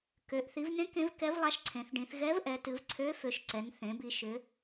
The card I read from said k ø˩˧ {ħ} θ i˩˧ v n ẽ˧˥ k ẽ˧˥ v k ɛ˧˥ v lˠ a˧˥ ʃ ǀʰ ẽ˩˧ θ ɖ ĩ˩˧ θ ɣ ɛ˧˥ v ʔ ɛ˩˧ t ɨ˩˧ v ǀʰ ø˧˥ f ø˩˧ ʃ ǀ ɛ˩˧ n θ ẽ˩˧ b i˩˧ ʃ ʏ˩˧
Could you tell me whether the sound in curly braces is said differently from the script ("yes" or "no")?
yes